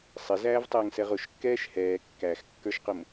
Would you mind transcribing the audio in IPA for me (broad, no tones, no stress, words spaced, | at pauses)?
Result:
sˤɪzæːvtˤɛːŋsɛʁ ʊʃkːɛːʃ hɛː kːæxkːə˞ʃqʊm